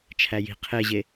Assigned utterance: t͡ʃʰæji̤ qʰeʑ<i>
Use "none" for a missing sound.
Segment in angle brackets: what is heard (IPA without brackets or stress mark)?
e